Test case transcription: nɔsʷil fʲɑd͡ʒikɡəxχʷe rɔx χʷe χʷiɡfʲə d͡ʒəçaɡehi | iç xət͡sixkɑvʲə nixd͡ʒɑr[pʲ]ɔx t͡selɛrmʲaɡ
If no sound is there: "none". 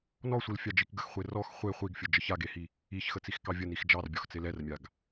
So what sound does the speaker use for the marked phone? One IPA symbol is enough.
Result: bʲ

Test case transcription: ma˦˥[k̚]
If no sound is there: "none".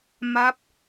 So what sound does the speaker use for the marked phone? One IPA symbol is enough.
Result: p̚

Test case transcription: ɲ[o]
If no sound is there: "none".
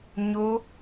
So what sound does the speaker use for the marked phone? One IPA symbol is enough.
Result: o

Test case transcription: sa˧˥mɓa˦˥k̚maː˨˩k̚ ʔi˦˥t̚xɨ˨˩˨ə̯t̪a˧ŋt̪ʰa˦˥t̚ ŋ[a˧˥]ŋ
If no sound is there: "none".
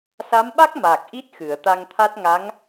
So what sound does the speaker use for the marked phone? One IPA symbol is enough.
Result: a˧˥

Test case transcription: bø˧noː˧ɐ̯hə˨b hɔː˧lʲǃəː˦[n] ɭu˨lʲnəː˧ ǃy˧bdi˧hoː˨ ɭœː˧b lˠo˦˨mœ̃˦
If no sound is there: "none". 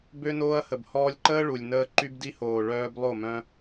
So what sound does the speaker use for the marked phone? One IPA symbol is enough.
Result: none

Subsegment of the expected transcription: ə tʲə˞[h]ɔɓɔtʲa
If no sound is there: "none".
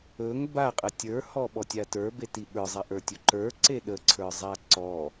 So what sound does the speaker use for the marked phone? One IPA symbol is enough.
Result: h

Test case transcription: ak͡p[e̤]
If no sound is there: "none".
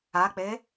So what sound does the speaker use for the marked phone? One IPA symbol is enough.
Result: e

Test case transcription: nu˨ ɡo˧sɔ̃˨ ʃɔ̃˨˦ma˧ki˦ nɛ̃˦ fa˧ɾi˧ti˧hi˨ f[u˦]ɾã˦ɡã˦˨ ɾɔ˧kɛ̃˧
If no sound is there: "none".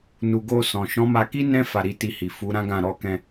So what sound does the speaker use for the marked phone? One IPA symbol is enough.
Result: u˨˦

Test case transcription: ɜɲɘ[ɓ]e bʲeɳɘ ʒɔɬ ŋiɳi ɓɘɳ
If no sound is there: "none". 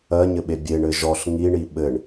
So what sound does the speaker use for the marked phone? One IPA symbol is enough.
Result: ɓ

